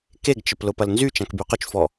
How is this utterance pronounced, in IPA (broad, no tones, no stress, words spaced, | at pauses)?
keɡt͡ʃəp lʊpɐlnzyt͡ʃãk byqʊt͡ʃfɔ